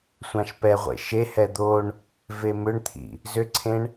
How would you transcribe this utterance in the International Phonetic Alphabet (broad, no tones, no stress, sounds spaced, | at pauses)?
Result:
sʷ ã ʃ p ɛ ʁʷ ḛ ʃ e h ɛ d̪ o ɳ | v e m ʏ ɳ t̪ʰ ḭ | z ʏ ǀʰ ẽ ɳ